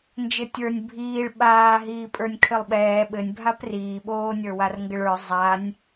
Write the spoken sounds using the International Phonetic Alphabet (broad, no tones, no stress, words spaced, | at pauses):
nd͡ʒɘtʲə˞nʲ bʱiːɭ ɓaːɦiː pʼə˞nʲkʰɘlˠɓɛː ɓɘnʲbʱap riːɓoː nʲə˞warŋɡɘɭə˞ zˤanʲ